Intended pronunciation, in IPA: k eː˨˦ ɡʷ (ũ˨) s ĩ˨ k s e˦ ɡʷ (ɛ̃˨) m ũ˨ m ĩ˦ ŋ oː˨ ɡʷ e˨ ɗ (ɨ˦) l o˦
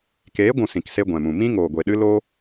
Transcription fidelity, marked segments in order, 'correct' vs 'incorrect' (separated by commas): correct, correct, correct